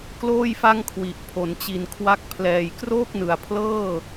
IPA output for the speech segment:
kloː˥˩jfa˥˩ŋkʰwi˨˩ʔ pʰo˩˦nt͡ɕi˨˩nkʰwa˦˥k̚ pʰlɛː˨˩jkroː˥˩k̚nɯ˨˩a̯ pʰlɤː˥˩

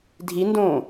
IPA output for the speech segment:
dʱindõː

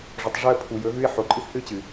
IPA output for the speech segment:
ʐɵ˨tˤʐɵ˦ə̯pʰu˨ jɵ˨˦ɣʉ˦ɪ̯ ħo˨ ǃʼɨ˦θhɨ˦t͡ɕɨ˨

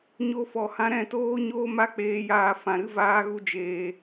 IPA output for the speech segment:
ɲo˧fɔ˨hã˧ ɾɛ̃˦˨toː˦ɲoː˦ ma˦k͡peː˧jaː˧ fã˨ɾɨ˦ vaː˦ɣu˦ d͡ʒeː˧

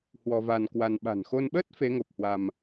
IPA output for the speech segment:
hwɔ˧va˧nkwa˧n ɓa̤˨˩nxo˧nɓəː˦˥t̚ fe˨˦ŋo˨˩p̚hwa˧m

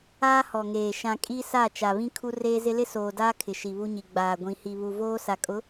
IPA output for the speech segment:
aː˦hɔ˨ŋeː˨ ʃã˨ kʼi˦sa˦˨ t͡ʃa˨βĩ˦ kʰu˦ reː˦zɪ˦ lɪ˦soː˨daː˦ kʰɪ˨ʃi˨βu˦ɲi˨ ɡ͡baː˨ɡʷĩ˨ hi˨βu˨ voː˦ sa˨kʼʊ˨˦

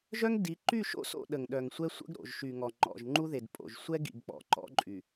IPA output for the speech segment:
ʒœ˦ŋdi˨˦ ǃy˦˨ʃo̰˦so̰˦˨ ɗə˨ŋɗœ˨ŋsʷɛ˦ sʷə̰˦ɡɾo̰˨ʒ ʃy˨ŋɔ˨ ŋ͡ǃɔ̰˨ʒ ŋ͡ǃu˦ðe˨dpʼo̰˨ʒ sʷɛ˦ ɡḭ˨ɡk͡pɔ̰˨ ǃɔ̰˦ǃʼy˨

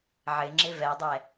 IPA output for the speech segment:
ʕɪŋ͡ǁɪ vɛdˤɛ

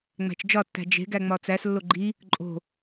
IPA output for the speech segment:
ŋ͡mæ̤t͡ʃd͡ʒɒtːæ̤ d͡ʒe̤ ɡæŋ͡mɒt͡sæslːo ɡ͡ǃi | ǃʼo̤

